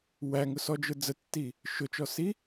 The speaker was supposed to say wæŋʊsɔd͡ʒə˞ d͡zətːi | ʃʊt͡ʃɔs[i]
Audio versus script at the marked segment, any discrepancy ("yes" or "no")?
no